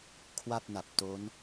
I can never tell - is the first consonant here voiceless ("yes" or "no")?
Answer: yes